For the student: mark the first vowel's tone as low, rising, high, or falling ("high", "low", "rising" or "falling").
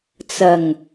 low